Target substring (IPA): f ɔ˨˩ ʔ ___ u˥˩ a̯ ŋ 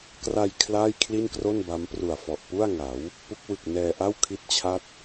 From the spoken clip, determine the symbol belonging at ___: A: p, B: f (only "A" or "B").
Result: A